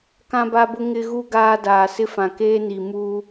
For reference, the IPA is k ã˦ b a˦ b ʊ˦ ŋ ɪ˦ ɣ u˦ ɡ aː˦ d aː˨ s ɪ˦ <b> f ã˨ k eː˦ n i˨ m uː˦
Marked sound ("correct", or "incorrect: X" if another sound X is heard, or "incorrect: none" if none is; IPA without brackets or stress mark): incorrect: none